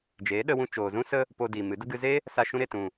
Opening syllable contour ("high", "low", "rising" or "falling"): rising